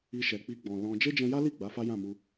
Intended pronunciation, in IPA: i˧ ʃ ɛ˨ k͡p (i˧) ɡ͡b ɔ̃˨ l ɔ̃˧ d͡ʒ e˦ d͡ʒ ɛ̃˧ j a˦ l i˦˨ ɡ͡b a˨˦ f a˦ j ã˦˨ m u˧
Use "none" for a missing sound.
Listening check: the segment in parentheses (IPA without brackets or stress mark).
i˧